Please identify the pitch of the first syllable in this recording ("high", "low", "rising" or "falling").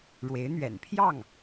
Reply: rising